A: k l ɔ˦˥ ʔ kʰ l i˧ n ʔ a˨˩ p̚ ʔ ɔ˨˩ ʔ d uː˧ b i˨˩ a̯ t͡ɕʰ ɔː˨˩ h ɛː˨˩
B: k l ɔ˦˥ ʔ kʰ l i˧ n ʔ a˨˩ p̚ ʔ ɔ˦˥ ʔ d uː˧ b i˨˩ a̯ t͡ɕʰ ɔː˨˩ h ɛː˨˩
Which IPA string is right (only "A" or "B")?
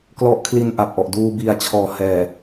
A